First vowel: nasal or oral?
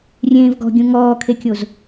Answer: nasal